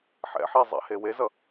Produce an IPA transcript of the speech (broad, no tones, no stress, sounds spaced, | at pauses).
ħ ɛ̰ ħ e zˤ ɛ̰ h e w e z ʌ